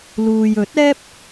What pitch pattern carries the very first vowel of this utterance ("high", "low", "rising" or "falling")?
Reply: low